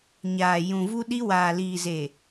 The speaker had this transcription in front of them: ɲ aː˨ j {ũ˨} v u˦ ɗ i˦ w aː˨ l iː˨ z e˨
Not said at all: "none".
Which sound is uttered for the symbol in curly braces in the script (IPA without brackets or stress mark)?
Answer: ũ˨